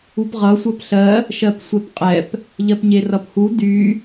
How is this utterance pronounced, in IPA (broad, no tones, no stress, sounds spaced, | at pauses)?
u p ʁ ʌ sʷ ɜ p ɬ ɜ | ʃ ɜ p sʷ ɛ p qʼ ɛ p | ʎ ɜ p ɲ e r ʌ p h u d y